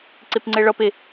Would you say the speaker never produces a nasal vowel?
yes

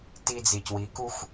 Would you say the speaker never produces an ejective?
yes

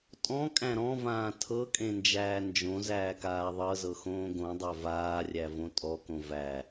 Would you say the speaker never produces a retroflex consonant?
yes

